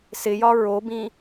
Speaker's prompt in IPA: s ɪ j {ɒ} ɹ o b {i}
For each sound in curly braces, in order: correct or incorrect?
correct, incorrect: ĩ

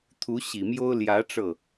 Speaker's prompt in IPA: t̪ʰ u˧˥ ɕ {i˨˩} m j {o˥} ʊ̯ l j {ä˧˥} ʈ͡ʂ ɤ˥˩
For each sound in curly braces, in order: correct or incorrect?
correct, correct, correct

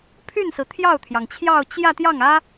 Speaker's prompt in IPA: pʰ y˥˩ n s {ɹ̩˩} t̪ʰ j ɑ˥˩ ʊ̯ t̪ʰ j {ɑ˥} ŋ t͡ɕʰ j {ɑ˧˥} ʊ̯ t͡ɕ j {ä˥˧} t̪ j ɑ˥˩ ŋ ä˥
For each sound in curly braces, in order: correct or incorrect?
correct, incorrect: ɑ˩, incorrect: ɑ˥˧, correct

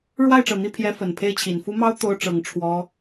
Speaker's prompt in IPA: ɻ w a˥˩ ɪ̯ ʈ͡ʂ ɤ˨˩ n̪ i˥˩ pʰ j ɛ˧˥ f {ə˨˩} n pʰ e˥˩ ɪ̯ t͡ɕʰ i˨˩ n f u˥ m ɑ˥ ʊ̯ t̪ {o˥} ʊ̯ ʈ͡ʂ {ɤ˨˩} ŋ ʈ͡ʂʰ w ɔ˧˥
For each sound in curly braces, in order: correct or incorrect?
correct, correct, correct

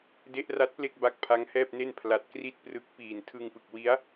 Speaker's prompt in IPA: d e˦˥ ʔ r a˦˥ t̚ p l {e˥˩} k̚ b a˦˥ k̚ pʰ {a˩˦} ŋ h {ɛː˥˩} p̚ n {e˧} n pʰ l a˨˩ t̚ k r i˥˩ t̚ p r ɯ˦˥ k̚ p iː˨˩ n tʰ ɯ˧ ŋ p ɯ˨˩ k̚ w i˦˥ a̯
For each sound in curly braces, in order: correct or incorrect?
correct, incorrect: a˦˥, correct, incorrect: e˥˩

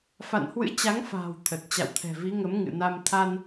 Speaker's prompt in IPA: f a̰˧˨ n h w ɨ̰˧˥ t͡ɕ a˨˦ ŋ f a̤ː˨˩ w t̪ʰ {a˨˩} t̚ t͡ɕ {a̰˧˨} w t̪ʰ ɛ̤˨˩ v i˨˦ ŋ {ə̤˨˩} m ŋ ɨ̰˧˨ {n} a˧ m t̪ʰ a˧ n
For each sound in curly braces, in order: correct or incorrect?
incorrect: ə˨˩, correct, incorrect: ə˨˦, correct

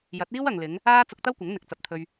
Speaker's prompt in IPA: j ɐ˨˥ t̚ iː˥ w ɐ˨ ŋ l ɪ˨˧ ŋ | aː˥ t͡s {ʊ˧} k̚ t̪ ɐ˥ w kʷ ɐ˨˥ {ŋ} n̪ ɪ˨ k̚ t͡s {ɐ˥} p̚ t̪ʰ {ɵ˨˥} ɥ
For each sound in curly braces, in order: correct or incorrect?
correct, correct, incorrect: ɐ˨, incorrect: ɵ˧

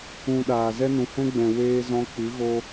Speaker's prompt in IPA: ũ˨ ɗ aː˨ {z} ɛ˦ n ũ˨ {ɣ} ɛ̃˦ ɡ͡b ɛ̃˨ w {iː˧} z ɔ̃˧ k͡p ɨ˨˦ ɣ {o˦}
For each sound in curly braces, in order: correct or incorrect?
correct, incorrect: h, incorrect: eː˧, correct

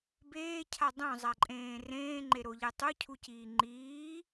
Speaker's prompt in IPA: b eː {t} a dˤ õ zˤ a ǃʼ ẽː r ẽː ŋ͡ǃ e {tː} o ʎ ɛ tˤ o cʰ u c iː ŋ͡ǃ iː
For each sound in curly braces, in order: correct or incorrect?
incorrect: cʰ, incorrect: ɾ

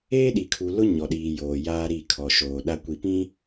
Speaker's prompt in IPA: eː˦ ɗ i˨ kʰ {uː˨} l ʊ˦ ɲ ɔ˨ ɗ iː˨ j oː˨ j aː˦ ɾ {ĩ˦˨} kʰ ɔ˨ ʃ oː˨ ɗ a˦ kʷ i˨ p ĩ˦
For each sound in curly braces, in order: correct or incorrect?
incorrect: u˨, incorrect: i˦˨

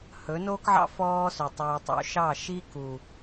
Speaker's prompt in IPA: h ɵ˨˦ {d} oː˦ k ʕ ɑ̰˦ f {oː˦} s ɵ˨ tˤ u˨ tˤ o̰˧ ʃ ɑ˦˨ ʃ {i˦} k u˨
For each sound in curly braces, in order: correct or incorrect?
incorrect: n, incorrect: ɔː˦, correct

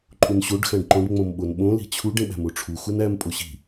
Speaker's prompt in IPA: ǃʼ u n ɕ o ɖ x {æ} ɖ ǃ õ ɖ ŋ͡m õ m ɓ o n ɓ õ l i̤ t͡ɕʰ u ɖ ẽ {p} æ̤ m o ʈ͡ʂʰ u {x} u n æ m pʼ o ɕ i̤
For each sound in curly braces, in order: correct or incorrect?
incorrect: æ̃, incorrect: ɓ, correct

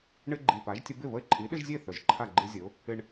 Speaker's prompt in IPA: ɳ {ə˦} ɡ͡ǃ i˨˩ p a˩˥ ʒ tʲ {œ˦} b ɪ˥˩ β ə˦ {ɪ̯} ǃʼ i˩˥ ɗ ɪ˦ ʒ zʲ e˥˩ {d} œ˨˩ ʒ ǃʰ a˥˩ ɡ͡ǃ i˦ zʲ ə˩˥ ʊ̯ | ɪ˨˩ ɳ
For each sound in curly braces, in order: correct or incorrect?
incorrect: ɪ˦, incorrect: ə˦, correct, incorrect: θ

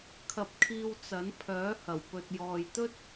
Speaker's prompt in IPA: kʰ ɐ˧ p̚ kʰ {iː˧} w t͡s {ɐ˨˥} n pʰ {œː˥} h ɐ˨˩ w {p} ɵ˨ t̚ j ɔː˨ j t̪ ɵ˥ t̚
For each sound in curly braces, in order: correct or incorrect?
correct, correct, incorrect: œː˨˥, correct

